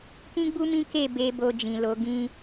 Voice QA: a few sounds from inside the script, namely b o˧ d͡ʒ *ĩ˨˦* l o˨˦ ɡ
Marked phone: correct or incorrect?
incorrect